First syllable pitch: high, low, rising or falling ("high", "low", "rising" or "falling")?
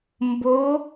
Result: rising